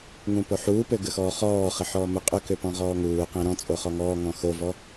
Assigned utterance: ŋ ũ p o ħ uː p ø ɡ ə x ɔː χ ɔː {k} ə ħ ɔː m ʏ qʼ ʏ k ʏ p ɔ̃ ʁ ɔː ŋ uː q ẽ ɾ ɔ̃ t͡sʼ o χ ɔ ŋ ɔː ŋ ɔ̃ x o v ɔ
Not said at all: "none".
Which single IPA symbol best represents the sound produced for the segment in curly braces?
χ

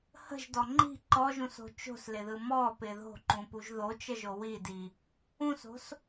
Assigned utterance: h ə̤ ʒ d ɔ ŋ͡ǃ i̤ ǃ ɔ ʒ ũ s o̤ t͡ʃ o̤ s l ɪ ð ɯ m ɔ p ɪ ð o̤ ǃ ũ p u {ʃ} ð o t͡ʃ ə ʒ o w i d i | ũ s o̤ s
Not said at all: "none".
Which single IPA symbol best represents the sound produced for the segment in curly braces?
ʒ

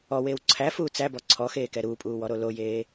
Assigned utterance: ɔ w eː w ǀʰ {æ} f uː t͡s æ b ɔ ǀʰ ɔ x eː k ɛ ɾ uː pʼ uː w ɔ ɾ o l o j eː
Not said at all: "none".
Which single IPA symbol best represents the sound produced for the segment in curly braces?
æ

